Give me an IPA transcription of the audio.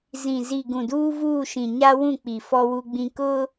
z ĩ˨ z i˨ ɡ ũ˨ d uː˦ v uː˦˨ ʃ ĩ˨ ɲ a˦ w ũ˦˨ k͡p i˨ f ɔ˦ w u˦ ɡ͡b ĩ˦ k ʊ˦

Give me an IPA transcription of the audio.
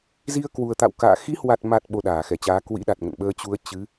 z i˧ ə̯ k w u˨˩ ə̯ t̪ a̰˧˨ w k a̰ː˧˨ x i˨˦ h w a˨˩ t̚ m a˨˩ t̚ ɓ o˧ ɗ aː˧˩ x ɛ˧˩ t͡ɕ aː˨˦ k w ḭ˧˥ ɗ a˨˩ t̚ ŋ ə̰˧˨ n ɓ əː˧ t͡ɕ u˨˦ ə̯ t͡ɕ ɨ˨˦

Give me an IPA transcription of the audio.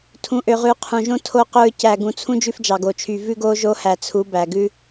tʰ ũ˨ ʔ ø˨ ʁ ʉ˨˦ qʰ ũ˨ ʒ õ˦ tʰ o˦ q ɵ˦ ɹ c æ˨ ɡ ũ˨ t͡sʰ ũ˦ d͡ʒ ʉ˦ f d͡ʒ ɑ˨ ɡ o˨ t͡ʃʰ y˨ v ʉ˦ ɡ o˦ ʒ o˦ h æ˨ t͡sʰ u˨˦ b æ˨ ɡ ʉ˦

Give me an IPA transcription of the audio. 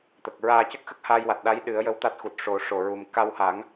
t̪ ə˨˩ k̚ ɹ aː˧ c ə˦˥ k̚ x ə˦˥ k̚ h aː˧ j w a˨˩ t̚ ɗ a˧˥ j ɗ ɨ˨˩˦ ə̯ j ə˧ w t̪ a˦˥ t̚ x u˨˩ t̚ ʂ o˨˩˦ ʂ o˨˩ ɹ u˨˩ m k a˧ w h a˨˩˦ ŋ

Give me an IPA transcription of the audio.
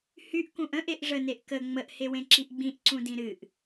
h y ʔ k ũ ʔ ə̃ ʔ e ʔ ʐ ə n e ʔ k ə ŋ͡m ə ʔ h e w ẽ ǁ i ʔ ɡ͡b ĩ ʔ ǀ ũ d ĩ ɾ ɨ ʔ

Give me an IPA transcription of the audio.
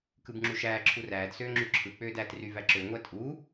k ɯ b ŋ͡ǁ u ʃ æː ǁʰ u r æː d s øː ŋ͡ǁ y ǁʰ ɯ k͡p øː d æː t r y v æ ǁ ø ŋʷ æ tʼ uː

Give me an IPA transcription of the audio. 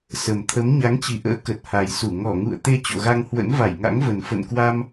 s ə˨˩ m t̪ʰ ə˨˦ m ɲ a˨˦ ŋ t͡ɕ i˧˩ ʔ ə̰ː˧˥ k ə˨˩ t̚ h a˨˩ j s u˧˩ ŋ ɔ˧˩ ŋ ṵ˧˨ ə̯ t̪ e˧ t͡ɕ o̰˧˨ ɣ a˧ ŋ h w ə̰˧˥ n v a˧˩ j ŋ a̰˧˥ ŋ v ə˨˩ n f ə̰˧˨ n k w a˧ m

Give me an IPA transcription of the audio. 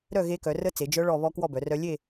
ɾ œ˦˨ ɣ e˦˥ k œ˩˧ r ə˦˥ t͡s e˩˧ d͡ʒ œ˦˥ ɭ ɔ˦˨ β ɔ˦˥ k w ɔ˦˨ b œ˩˧ r œ˦˥ lʲ e˦˨

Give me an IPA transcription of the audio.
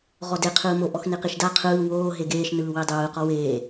ʁ ɔ d e qʰ ɯː m o ʔ ɔ x n i q i ʃ d a qʰ ɯː w oː ɦ e ɡ eː ʃ n ɯː w i dˤ ɯː q ɔ w eː

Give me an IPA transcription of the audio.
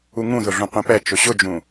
u ŋ ũ ð ʊ ɮ ũ qʷ ẽ p ɛ t͡ʃ ʊ ɕ ʊ d͡ʒ ũ

